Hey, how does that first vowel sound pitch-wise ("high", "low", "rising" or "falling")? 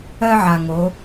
high